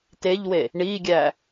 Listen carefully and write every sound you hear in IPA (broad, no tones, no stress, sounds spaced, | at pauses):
t e ʎ w e | ɳ i ɡʲ æ